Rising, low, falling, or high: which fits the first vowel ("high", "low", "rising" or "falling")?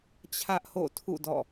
high